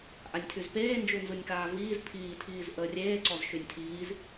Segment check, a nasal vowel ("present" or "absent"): absent